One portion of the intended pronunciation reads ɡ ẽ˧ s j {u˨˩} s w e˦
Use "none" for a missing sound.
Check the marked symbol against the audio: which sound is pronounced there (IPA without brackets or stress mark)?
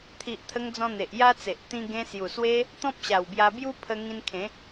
u˨˩